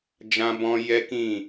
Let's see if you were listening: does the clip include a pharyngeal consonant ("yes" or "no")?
no